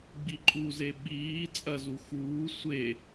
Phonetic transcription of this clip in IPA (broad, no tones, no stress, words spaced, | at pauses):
ɡ͡biǃʼuze ɓiː t͡sʼɐzu xuː sʷe